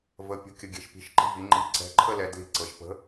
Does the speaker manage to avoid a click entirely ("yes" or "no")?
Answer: no